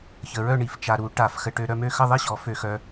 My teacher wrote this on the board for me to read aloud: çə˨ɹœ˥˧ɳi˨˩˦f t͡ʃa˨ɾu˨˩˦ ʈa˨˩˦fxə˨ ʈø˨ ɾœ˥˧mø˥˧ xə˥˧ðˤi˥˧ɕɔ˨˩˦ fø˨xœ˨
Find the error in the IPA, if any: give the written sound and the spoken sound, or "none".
none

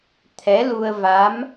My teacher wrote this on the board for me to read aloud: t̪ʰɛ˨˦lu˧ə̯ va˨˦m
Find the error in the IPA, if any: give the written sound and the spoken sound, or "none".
none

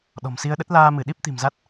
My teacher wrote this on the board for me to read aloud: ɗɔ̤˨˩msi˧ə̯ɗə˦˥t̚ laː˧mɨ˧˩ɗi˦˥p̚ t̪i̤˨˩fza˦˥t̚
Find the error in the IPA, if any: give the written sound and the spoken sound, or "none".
f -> m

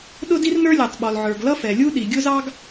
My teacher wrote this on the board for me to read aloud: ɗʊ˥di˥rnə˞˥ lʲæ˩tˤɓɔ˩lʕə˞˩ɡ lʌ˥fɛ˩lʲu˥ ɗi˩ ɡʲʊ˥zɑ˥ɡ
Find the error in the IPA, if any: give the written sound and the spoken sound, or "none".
none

